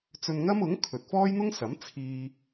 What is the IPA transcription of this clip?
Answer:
t͡sɵ˧nŋɐ˥mʊ˨˥ŋ kʰɵ˨t̚fɔː˥jn̪ʊ˥ŋsɐ˨˥m t͡sʰiː˧

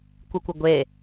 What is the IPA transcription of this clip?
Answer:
kʷɨkʷəɡʷe

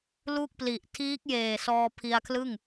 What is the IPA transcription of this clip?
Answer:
lu˥˩k̚pli˨˩ʔ tʰiː˦˥k̚ jeː˨˩sɔː˧pʰi˧a̯kʰlɯ˥˩ŋ

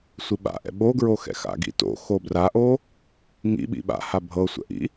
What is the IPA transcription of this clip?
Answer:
sʷiɓa̰ʔɛ̰ ɓoɡɹoxɛ̰ xa̰ɡḭ to̰ xobraʔo | ŋḭɓḭ ɓa̰ habʱɤsʷɛ̰ʔḭ

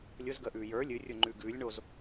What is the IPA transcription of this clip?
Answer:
lʲʊzɡəːʔʉː jə˞ lʲɨrʲʊŋ͡ǃʉː ɡʉːlʲ ɳoz

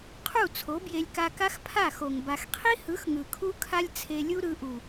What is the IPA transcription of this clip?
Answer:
qʰu˦˨ t͡sʰo˨˦bje˧lʲ ka˧ka˦xpʰa˦˨xo˨ŋ ba˨xqʰi˦hɯ˨˦xŋɯ˨ kʰu˦kʰa˦lʲ t͡sʰe˧lʲu˦ɾɯ˧ ʔu˨

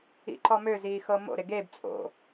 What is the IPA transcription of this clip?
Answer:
ḭǃɔmø ziːxɤmo̰ ɾeɡeb t͡sʼo̰

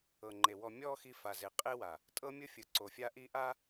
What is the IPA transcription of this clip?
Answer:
ɤ˨ŋ͡ǃe˨ wɔ˨ mʲɔ˦ xi˦ fa˨ze˨˦ qʼe˦wa˨ | tʼɤ˦mʲɯ˦fʲɯ˨ǀo˨ fʲa˦ ʔi˦ʔa˦

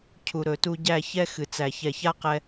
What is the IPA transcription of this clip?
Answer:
cʰu˨ ɾɵ˨tu˧ ɟæ˦˨çɛ˦ xɨ˨t͡sæ˨ çɛ˨ça˦ qɛ˧

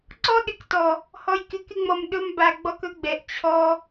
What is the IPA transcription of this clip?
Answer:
ǀɔ˦ɗɪ˨ktɔ˨ | hɔ˨jkɪ˨kɪ˧ŋ͡mɔ˨m ɗɵ˧mba˨ɡ͡bɔ˧k ɵ˦ɡ͡bɛ˨ʔ t͡ɕʰɔ˧

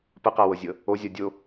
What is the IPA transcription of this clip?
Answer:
pəqæwɤzʲɤ | ozʲɔ dʲo

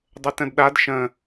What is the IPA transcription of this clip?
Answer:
dˤətə̃dɗad ʃə̃

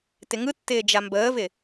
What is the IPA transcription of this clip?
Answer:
tɪŋɯtːɪː d͡ʒambəːvɪ

